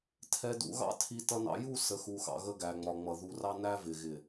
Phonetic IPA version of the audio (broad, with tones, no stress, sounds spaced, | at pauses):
tʰ ɛ˨ d ṵ˨ ɣ ɑ̰˦ tʰ i˨ t ʌ˨ n ɑ̰˨ j u˦˨ s ə˨ x u˨ x ɑ̰˨ ɣ ə˦ ɡ æ˨ ŋ͡m ɒ˨ ŋ͡m ʌ˨ ð u˨ r ɑ˦ n æ˦ v ɪ˨ ɣ ɪ˨